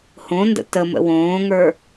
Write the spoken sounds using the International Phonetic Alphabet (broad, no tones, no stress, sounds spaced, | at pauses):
h õ n d ə̰ t ə m ə̰ w õː ŋ ə˞